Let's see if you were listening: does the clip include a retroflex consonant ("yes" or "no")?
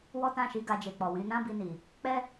no